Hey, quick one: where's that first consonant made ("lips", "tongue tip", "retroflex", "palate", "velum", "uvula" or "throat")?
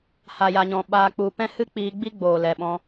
throat